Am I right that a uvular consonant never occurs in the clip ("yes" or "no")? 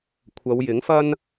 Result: yes